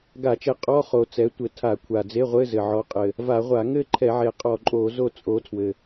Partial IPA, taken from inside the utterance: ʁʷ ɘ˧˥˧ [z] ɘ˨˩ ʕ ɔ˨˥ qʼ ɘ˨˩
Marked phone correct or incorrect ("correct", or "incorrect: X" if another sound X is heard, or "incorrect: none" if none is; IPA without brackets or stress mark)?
correct